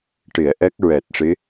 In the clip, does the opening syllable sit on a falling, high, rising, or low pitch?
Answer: low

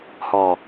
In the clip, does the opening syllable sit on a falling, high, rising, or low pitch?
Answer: low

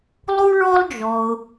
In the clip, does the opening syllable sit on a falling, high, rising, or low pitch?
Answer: high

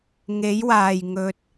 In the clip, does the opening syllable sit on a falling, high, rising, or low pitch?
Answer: rising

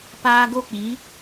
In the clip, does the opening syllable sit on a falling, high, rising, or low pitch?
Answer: high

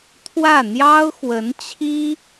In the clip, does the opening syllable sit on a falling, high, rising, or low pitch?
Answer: falling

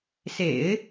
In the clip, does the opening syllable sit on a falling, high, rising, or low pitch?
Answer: low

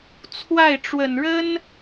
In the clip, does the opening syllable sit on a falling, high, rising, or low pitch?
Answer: falling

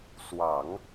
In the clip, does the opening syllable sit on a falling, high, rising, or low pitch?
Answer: low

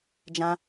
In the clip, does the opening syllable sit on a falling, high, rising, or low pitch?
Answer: high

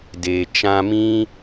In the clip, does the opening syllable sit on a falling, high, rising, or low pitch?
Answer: low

